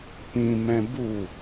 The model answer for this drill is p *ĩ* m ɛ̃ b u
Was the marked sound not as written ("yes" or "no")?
no